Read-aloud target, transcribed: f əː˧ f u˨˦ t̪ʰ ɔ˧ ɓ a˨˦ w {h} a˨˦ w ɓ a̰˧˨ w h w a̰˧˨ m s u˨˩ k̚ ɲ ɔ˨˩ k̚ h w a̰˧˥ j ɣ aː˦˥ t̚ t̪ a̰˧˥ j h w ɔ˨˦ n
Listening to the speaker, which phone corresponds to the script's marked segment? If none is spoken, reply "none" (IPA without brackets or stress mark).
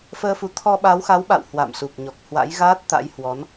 x